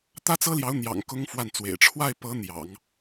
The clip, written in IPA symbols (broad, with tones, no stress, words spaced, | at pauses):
t̪ä˥t͡sɤ˥ljɑ˧˥ʊ̯n̪jɑ̰˨˩ŋ kʊ˥ŋfwa˥˩nt͡swḛ˨˩ɪ̯ ʈ͡ʂʰwa˥˩ɪ̯pɤ˧˥ n̪jɑ̰˨˩˦ŋ